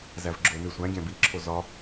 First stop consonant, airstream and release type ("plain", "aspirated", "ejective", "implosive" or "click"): click